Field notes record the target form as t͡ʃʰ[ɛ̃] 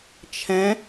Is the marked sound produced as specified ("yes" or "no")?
yes